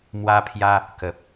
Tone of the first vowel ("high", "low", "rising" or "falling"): high